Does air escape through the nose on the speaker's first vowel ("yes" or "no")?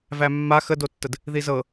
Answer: no